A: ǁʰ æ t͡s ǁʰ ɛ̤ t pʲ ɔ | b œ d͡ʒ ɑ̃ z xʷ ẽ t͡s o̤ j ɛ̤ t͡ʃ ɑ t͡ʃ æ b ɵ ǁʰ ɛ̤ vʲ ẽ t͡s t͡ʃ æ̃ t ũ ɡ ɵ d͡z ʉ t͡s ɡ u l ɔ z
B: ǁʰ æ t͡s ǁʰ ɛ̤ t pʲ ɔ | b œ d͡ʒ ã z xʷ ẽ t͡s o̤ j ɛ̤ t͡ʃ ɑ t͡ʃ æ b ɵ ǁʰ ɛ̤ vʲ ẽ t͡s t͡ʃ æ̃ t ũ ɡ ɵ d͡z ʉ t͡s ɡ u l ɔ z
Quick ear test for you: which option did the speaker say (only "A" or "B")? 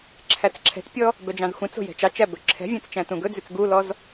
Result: A